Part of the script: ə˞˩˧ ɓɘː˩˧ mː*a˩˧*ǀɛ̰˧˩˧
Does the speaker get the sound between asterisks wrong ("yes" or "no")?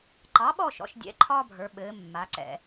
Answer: no